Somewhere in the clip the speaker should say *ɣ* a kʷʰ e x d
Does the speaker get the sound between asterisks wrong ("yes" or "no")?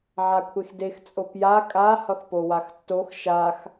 yes